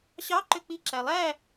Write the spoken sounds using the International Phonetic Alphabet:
ɕ ɑ ǃ ø k͡p i ǁ æ lˠ æ

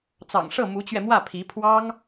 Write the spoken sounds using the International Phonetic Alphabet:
t͡s ɑ̰˨˩ ŋ ʂ ɤ˥˩ m u˧˥ t͡ɕ ɥ ɛ˧ m w ä˥˩ pʰ i˧˥ pʰ w ɑ˥ ŋ

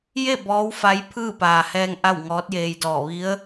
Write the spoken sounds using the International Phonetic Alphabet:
j e˥˨ b ɔː˧˥ w f a˧˥ j pʰ ɯː˥˨ p aː˩ h ɛː˧ ŋ ʔ a˥˨ w ŋ ɔː˧˥ t̚ j eː˧ j d ɔː˧˩ ʋ i˧˥ ə̯

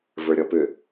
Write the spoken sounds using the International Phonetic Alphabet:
v ə˞ ɾʲ ɔ p ʏ

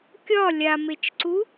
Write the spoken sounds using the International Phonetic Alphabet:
kʲ ɒ lʲ a m e t͡ʃ ǀ u

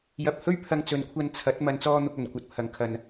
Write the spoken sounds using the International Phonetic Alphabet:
j ɐ˨ p̚ h ɵ˥ ɥ pʰ ɐ˧ ŋ t͡s ɵ˨ n kʷʰ ɐ˧ n t͡sʰ ɐ˨˥ t̚ m ɐ˨ n t͡s ɔː˧ n̪ ʊ˧ k̚ ɵ˨˩ n kʷ ɐ˧ t̚ pʰ ɐ˨˥ ŋ kʰ ɐ˨ n

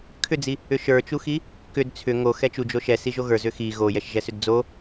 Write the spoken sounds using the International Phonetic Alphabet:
kʰ ʏ d͡z i | ʏ ʃ ə˞ t͡ʃ u x i | k ʏ d t͡sʰ ʏ ŋ o x ɛ t͡ʃ u d͡ʒ o ʃ ɛ s i ʒ o ɣ ə˞ z ʏ x i ɣ o j ɛ ʃ ʒ ɛ s ʏ d d͡z o

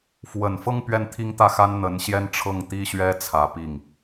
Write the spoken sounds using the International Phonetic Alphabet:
f w ə˨˩ n f ɤ˥˧ ŋ p ɥ ɛ˥˩ n t̪ʰ i˥ ŋ t̪ ä˥˩ x a˥ n n̪ ə˧˥ n ɕ j ɛ˥ n ʈ͡ʂʰ ɤ˥˩ ŋ t̪ i˥ ɕ ɥ ɛ˥ t͡sʰ ä˧˥ p i˥˩ ŋ

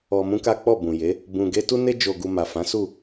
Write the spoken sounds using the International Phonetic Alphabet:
ɔ˧ m ũ˦ k a˦ k͡p ɔ˦˨ b ũ˨ j e˨˦ | b ũ˧ ɡ e˦ t u˦ n e˦ d͡ʒ o˧ ɡ u˧ m a˨ f ã˨˦ s u˦˨

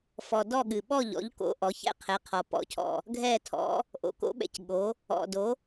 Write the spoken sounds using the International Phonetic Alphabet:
f ɔ˩ d ɔ˥˨ ɠ ɨ˩ ɓ ɔ˥˨ ʎ ɔ̰˩˥ ʎ k o̰˩˥ ʔ ɔ˩˥ ç ɛ̰˥˨ qʰ ɛ˩˥ qʰ ɔ˩ p ɔ̰˩ cʰ ɔ̰˩ | ɡʱ ɛ˥˨ tʰ ɔ̰˩˥ | ʔ o̰˩ k o̰˩˥ ɓ ɛ̰˩ c ɠ o˩˥ | ɔ̰˩ d o˩˥

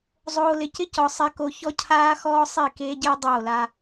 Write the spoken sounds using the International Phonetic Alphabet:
zˤ oː˨ l ɪ˨ c ɪ˦ c ɔ˨ sˤ ɛ˨ k o˨ ç ɔ˦ cʰ aː˦ x ɔː˦ sˤ i˦˨ k eː˦ ɟ ɪː˦ dˤ oː˦˨ l a˦

